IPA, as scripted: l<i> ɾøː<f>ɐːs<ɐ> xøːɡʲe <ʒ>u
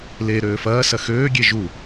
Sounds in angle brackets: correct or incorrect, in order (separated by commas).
incorrect, correct, correct, correct